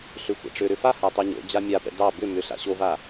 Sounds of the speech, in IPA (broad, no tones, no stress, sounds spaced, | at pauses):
ɬ ʏ xʷ a̰ ʈ͡ʂ ʏ ɾ ʏ f a h a tˤ o ɲ o̰ d͡ʑ a mʲ a p ɛ̰ d ɑ b ʏ m ʏ ɬ a̰ ɕ o v a